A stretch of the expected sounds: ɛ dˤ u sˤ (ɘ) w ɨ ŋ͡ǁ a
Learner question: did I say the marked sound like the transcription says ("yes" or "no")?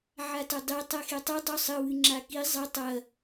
yes